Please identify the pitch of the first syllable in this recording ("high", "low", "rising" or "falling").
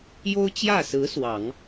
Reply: high